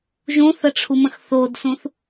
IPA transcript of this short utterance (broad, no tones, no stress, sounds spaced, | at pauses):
ʒ ũ θ ə ʈ͡ʂʰ u m ə̃ x θ o d s ũ θ